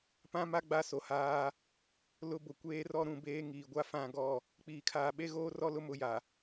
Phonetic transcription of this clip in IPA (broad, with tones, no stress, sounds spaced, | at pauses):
p ã˦ m a˦ ɡ͡b a˦ s o˨ h aː˦ | l ʊ˦ b ʊ˨ kʷ eː˦ r ɔ˦ ɾ ũ˦˨ b eː˦ ŋ iː˨ ɡʷ a˦ f ã˦˨ ɡ ɔ˦˨ | k͡p iː˨ kʰ aː˨ ɓ e˦ ɣ oː˦ r ɔ˦ l ʊ˦ m ʊ˨˦ j a˨